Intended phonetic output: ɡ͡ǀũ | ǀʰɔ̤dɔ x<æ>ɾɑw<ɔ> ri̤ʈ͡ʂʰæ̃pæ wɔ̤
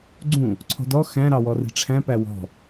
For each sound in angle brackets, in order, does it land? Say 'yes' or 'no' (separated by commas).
no, yes